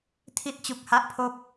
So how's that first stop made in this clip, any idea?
aspirated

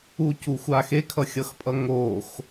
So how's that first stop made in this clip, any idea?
plain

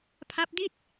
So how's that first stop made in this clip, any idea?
aspirated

